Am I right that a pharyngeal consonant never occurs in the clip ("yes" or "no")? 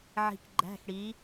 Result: no